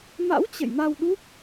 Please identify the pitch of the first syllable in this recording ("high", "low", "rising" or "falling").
rising